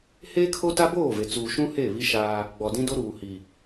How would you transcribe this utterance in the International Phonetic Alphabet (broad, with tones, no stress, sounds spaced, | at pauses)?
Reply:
h eː˦ kʰ o˦ t a˦ b oː˦˨ v e˨ t͡s uː˨ ʃ ũ˦ h eː˦˨ β i˦ ʃ aː˦ | ɡ͡b ɔ˨ d ĩ˦ d o˦ ɾ uː˨ h i˨